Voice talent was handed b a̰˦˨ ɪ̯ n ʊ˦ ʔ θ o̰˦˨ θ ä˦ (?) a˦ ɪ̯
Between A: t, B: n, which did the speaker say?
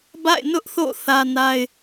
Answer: B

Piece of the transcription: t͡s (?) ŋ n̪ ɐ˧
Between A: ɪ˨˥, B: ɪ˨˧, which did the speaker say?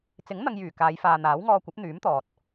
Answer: A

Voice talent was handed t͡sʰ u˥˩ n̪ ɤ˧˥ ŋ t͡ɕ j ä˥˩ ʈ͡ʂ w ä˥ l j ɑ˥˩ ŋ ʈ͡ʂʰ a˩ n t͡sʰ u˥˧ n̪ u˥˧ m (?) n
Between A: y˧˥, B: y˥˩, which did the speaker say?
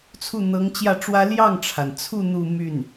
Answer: B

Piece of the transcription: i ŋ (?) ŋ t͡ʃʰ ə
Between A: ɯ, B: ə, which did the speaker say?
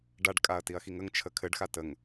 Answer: B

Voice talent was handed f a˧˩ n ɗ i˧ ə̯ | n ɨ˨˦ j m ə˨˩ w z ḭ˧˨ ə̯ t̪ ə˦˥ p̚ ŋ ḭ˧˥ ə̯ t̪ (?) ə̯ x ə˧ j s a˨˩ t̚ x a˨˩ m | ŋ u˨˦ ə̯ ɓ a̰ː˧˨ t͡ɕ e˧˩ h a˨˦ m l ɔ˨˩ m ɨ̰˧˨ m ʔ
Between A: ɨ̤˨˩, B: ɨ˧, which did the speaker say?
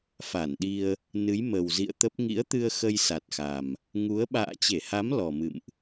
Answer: B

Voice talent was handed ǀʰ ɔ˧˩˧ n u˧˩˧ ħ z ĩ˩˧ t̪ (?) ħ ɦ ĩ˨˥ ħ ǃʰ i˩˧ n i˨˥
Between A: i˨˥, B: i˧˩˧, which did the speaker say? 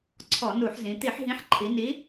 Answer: B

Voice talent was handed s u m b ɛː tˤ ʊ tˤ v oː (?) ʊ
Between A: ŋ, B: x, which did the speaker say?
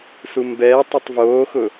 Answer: B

